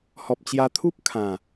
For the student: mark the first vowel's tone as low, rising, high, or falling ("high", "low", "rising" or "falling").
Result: low